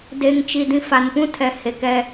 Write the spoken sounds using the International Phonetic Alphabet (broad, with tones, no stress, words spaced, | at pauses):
de˨ŋt͡ʃi˨ dĩ˨fa˨npũ˦tʰɛ˨ he˨kɛ˦